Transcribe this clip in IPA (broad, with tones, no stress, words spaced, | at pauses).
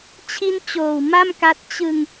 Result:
t͡ɕʰi˦˥n t͡ɕoː˨˩wma˥˩mka˦˥t̚ t͡ɕɯ˧ŋ